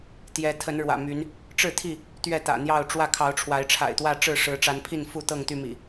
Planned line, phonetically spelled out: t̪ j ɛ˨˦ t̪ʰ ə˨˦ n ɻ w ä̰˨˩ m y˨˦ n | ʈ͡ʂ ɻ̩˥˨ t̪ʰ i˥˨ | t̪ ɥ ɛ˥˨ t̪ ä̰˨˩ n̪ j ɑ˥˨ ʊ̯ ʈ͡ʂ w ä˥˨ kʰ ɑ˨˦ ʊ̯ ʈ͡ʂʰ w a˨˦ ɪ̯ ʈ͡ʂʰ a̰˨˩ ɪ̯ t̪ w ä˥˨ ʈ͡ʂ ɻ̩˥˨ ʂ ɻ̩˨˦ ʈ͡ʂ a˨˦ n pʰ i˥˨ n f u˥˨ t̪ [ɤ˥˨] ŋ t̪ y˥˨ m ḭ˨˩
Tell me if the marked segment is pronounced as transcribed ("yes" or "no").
yes